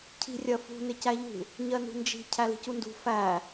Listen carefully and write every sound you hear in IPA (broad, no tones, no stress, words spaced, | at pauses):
cʰi̤rʲɜfṳ nɪcæʎṳ | ɲɜnṳnd͡ʒi̤ cʰæli̤cundṳ fæ